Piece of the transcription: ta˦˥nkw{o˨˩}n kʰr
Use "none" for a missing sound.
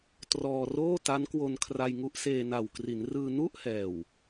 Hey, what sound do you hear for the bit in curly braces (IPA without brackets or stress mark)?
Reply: o˧